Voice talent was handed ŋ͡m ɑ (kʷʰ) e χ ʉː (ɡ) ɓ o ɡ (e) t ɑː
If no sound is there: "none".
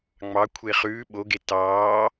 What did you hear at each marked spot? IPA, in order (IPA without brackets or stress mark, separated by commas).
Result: kʷʰ, none, e